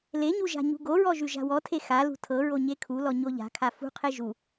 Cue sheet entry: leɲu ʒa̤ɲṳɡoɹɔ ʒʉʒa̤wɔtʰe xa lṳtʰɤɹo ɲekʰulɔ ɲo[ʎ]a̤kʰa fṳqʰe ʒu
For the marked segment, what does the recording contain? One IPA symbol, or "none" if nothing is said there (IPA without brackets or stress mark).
ʎ